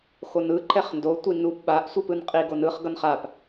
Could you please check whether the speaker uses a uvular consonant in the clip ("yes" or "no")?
yes